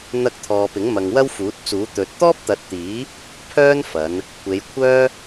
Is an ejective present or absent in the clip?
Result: absent